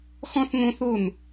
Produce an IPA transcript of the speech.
x ɔ̃˥ θ ŋ õ˥ θ o˥˩ n

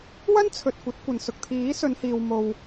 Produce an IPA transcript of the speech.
w ɐ˥ n t͡sʰ ɵ˨ t̚ kʷ ɐ˨˥ t̚ kʷ ɐ˨ n s ʊ˨ k̚ t̪ʰ iː˨˥ s ɵ˨˧ n h iː˨ w m o˨ w

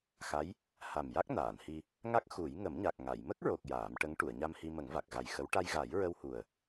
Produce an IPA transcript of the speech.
x a˧˥ j | h a˨˩ m j a˦˥ k̚ n aː˨˩˨ n h i˧ | ŋ a˦˥ k̚ x u˨˩˦ j ŋ ə˨˩˦ m ɲ a˨˩ k̚ ŋ a˨˩˨ j m ə˦˥ k̚ ɹ o˨˩ k̚ j aː˨˩˦ m ʈ ə˧˥ ŋ ʈ u˨˩˨ ə̯ ɲ a˧ m h i˧ m ə˨˩˦ ŋ v a˨˩ k̚ ɣ a˨˩ j x ə˧˥ w ʈ a˧ j ɣ a˨˩˦ j ɹ ə˧ w h u˨˩ ə̯

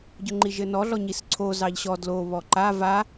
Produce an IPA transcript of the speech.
ɟ ʊ ŋ͡ǃ i ʒ ɘ n ɔ ɮ ɔ ɲ i s ǀʰ o z ɑ ʎ ɕ ɔ d l o β ɔ ǃ a v a

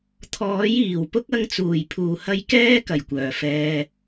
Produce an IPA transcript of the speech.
t̪ʰ ɔː˨˥ j iː˨˩ w p ʊ˥ k̚ ɐ˧ ŋ t͡s uː˨˩ j pʰ uː˨˩ h ɐ˧ j k ɛː˥ k ɐ˨˩ j kʷ œː˨˩ f ɛː˨

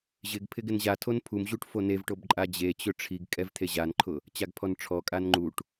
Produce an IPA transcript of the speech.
ʑ ɪ ɡ pʰ ɪ ɡ ɪ n ʑ a tʰ o n pʰ u m ʑ u ʈ f o n e v ʈ o b ǃʼ a d͡ʑ e t͡ɕ ʊ ʈ͡ʂʰ i ɡ kʼ ɛ v t̪ʰ e ʑ a n ǃʰ ʊ | t͡ɕ a ɡ pʰ ɔ n ʈ͡ʂʰ ɔ kʼ a n ŋ͡ǃ u ʈ

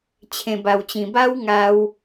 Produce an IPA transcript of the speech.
t͡ɕʰ ẽ˨˩ b a˨˩ w t͡ɕ ĩ˨˩ b a˦ w ŋ a˧ w

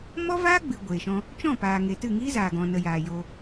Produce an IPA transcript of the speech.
m ɔ˦ v aː˦ ɡ͡b ɨ˨ ɡʷ eː˨ ʃ ɔ̃˧ | t͡ʃ ɔ̃˦˨ p aː˨ ŋ e˨ t ɨ˦˨ ŋ iː˦ z aː˨ ɡ ɔ̃˨ n ə˨ j aː˨ j o˧

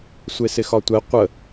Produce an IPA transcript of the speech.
sʷ e s ɪ x ɒ tʷ ɛ qʷ ə

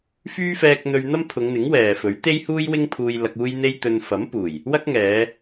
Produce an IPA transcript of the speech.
f yː˥ f ɛː˧ k̚ n̪ ɵ˧ ɥ n̪ ɐ˥ m pʰ ʊ˨˧ ŋ n̪ ɪ˨˥ ŋ w ɛː˨ f ɵ˨˥ ɥ t̪ e˥ j h uː˥ j w ɪ˥ ŋ pʰ uː˧ j l ɐ˧ k̚ uː˥ j n̪ e˥ j t̪ ɵ˧ n f ɐ˨˥ m p uː˨˩ j | w ɐ˥ k̚ ŋ ɛː˨˧

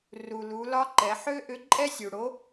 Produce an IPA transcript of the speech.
r u˩ l u˩˧ l ɒ˧˥ ǃ ɛ˩˧ ħ ø˥ ʔ ʏ˧˥ ǃʼ ɛ˥ sʲ u˩ ɽ o˧˥

